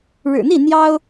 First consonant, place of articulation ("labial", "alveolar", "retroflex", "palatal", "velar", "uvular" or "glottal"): retroflex